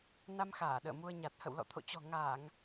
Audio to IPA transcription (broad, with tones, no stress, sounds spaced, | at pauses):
n a˧ m x aː˧˩ ɗ ə̰ː˧˨ m u˧ ə̯ ɲ a˨˩ t̚ h ə̰˧˨ w l ɔ̰˧˨ t̪ʰ o̰˧˨ t͡ɕ ɔ̤˨˩ ŋ aː˧˩˨ ŋ